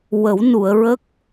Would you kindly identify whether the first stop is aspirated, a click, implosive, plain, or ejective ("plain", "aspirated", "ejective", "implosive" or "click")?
plain